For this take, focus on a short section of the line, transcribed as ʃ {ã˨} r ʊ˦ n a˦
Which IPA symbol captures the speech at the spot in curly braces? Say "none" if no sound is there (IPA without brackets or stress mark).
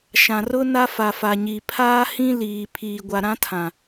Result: ã˨